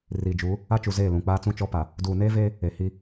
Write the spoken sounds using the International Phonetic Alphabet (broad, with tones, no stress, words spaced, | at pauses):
riː˨d͡ʒuː˨˦ | a˦t͡ʃu˨ zeː˦˨lũ˨k͡paː˦t͡sũ˦ t͡ʃɔ˦pa˨ | duː˨neː˦veː˦ | e˨hi˦